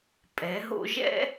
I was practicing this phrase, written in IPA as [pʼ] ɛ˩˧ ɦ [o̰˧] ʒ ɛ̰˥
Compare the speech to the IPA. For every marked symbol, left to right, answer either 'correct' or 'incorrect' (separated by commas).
correct, correct